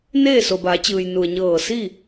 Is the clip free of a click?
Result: yes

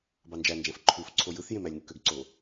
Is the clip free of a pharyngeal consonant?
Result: yes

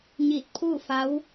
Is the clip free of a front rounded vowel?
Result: yes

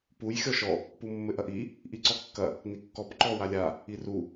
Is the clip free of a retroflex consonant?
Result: yes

